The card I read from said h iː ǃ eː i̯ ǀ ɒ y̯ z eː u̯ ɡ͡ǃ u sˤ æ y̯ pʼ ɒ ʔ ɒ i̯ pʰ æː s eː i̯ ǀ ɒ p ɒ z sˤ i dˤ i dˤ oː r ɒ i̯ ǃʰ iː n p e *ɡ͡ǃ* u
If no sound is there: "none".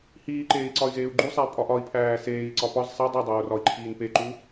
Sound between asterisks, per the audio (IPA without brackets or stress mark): ǃ